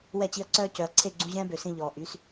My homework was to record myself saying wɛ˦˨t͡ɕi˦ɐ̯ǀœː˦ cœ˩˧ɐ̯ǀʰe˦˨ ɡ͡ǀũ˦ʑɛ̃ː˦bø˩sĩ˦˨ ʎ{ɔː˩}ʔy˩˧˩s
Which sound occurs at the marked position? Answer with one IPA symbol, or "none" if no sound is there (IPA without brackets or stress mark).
ɔː˩